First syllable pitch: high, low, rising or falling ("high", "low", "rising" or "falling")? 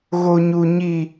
high